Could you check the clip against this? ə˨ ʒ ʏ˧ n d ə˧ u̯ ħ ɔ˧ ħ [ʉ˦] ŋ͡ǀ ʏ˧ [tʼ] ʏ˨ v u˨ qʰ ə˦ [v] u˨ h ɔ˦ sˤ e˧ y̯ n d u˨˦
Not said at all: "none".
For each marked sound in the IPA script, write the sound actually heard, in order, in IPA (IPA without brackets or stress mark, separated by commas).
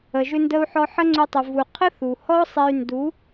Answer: ə˦, tˤ, θ